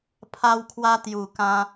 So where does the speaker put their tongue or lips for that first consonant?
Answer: lips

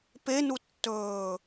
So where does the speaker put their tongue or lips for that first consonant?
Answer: lips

